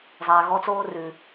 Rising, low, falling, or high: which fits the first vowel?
low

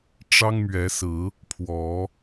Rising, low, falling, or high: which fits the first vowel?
high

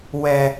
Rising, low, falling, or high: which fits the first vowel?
high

